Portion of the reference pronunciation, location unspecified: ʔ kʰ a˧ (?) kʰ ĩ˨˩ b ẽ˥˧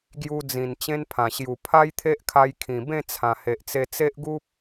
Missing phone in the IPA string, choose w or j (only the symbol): j